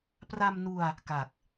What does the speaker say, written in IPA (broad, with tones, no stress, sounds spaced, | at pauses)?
p r a˧ m n u˧ a̯ | k a˨˩ k̚